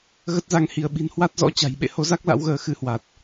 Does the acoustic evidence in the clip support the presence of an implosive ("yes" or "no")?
yes